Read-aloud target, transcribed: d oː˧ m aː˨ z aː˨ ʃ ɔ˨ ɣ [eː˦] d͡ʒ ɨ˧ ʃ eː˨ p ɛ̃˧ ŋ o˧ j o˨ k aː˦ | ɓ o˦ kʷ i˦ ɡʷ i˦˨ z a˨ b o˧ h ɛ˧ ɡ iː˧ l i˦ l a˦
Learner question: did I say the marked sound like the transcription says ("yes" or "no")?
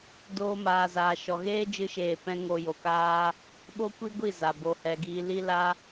yes